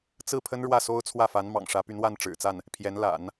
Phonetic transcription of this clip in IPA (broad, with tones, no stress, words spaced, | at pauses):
t͡sɹ̩˥˩pʰə˥n ɻwä˥˩so˥ʊ̯t͡sʰwä˥˩fa˧˥n mɑ̰˨˩ŋʂä˧˥ py˧˥nwa˥˩nʈ͡ʂɻ̩˨˩t͡sa˥˩n | pʰjɛ˧˥nla̰˨˩˦n